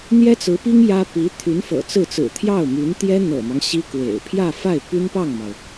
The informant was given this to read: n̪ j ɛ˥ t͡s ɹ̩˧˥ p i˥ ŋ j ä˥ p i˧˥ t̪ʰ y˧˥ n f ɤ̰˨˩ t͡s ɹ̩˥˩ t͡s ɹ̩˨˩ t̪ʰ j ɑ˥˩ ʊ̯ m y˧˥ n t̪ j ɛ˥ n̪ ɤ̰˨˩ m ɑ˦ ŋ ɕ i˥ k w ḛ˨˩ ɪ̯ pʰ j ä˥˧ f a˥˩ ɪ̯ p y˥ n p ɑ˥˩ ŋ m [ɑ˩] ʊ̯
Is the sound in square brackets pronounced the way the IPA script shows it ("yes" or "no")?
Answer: yes